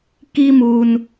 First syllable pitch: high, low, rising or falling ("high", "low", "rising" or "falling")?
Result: high